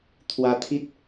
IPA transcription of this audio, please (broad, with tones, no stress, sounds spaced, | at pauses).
t̪ʰ w a˧ t̪ʰ i˦ t̚